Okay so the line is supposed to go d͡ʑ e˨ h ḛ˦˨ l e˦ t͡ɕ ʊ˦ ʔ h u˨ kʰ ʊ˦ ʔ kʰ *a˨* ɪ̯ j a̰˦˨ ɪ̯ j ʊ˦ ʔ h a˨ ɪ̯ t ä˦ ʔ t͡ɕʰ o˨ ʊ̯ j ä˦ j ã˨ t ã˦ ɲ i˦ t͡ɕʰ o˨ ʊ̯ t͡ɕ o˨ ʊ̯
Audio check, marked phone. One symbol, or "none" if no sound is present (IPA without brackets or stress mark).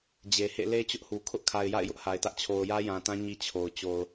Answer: a˨